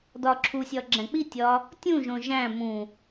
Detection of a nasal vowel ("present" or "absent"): present